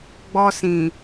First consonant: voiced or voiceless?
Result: voiced